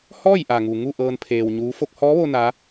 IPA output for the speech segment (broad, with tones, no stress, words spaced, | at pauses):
hɔː˥˨jʔa˩ŋu˩ ŋu˥˨ʔɤː˧n pʰeː˧wɲuː˧˥ fo˧k̚hɔː˧˥ʋo˧ na˧˥